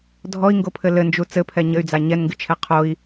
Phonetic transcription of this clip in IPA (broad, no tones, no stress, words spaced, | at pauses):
dʱɔi̯ŋɡopʰɘ lɘnd͡ʒu t͡sɘpʰɛ ɲɘy̯d͡za ɲɛnŋɡɨt͡ʃʰɛ qʰoi̯